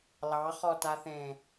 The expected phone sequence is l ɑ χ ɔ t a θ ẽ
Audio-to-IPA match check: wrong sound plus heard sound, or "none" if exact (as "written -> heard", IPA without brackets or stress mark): none